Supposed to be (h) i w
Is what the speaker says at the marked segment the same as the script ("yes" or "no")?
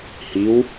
yes